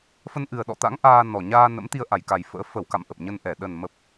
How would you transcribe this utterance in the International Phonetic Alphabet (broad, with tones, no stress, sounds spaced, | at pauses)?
f ə˧ n ʔ ɨ˨˩ ə̯ ɗ ɔ̰˧˨ t̪ a̰˧˥ ŋ ʔ aː˧ n ɔ˨˩ ɲ aː˧ n ə̰˧˥ m t̪ i˧ ə̯ ʔ a˧˩ j k a˨˩ j f ə̰ː˧˥ f ə˧˩ w k a̰˧˨ m ʔ ə˨˩ p̚ ɲ ə˧ n ʔ ɛ˧˩ ɗ ə˨˩ n m ə˨˩ p̚